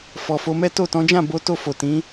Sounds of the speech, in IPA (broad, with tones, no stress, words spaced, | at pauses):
fɔ˨fo˧ mɛ˦to˦˨tɔ̃˨˦ d͡ʒã˦˨bo˨˦ to˦˨fo˨ tĩ˨˦